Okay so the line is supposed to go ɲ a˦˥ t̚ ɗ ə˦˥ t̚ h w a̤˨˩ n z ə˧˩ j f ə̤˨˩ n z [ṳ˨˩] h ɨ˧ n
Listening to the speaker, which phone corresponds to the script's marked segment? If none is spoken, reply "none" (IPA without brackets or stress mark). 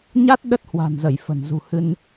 ṳ˨˩